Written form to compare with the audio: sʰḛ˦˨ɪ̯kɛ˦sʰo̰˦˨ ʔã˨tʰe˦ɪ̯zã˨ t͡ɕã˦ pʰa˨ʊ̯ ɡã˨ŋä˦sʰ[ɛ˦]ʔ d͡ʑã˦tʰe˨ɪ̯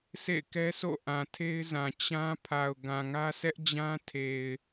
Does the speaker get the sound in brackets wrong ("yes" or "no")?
no